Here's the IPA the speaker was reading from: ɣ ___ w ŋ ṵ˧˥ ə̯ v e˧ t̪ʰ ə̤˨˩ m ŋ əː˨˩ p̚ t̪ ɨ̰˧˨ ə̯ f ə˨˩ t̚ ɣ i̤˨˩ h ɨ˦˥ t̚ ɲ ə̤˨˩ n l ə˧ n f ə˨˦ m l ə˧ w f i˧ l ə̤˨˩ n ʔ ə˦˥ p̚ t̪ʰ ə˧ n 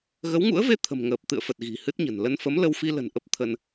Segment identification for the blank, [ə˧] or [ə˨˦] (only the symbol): ə˨˦